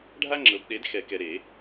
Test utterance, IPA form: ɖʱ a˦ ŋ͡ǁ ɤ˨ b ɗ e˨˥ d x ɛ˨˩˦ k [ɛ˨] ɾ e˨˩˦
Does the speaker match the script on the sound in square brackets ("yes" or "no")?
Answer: yes